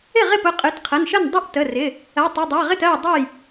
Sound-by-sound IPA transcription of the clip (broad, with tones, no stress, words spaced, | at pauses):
ɪ˥˩ʁɪ˥˩p ʊ˩˧˩qʼɨ˩˧˩tqʰə˩˧˩nʃə˥˩n dˤʊ˥˩ʔtə˩˧˩rɪ˩˧˩ | ɜ˩˧˩ tˤɨ˩˧˩dˤɜ˩˧˩ʁɪ˥˩tɜ˥˩j dˤɨ˥˩j